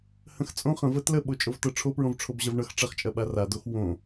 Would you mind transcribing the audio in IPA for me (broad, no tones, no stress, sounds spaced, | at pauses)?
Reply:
h ə̃ x t͡sʼ õ χ ə̃ v ə t l ə ɓ o t͡ʃʼ o v t ɤ ʈ͡ʂʰ o p ɹ õ v ʈ͡ʂʰ o b ʑ ɐ v ɳ ʌ x ʈ͡ʂ ɐ χ t͡ʃʼ ɐ ɓ a r a d o x w õ